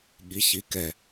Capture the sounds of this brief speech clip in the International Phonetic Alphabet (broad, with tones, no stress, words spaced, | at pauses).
ɠi˩˧çi˩˧ kɛ˩